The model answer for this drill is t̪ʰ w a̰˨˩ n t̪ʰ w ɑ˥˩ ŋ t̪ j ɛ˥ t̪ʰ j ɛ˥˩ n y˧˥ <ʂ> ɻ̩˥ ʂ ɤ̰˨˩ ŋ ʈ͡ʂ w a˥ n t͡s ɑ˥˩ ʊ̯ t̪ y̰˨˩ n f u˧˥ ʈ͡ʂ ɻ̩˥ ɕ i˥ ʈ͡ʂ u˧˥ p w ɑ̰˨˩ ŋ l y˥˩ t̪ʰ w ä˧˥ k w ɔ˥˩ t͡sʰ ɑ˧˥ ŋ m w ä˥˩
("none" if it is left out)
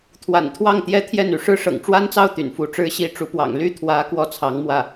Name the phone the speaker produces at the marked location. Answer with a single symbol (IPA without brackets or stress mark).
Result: ʂ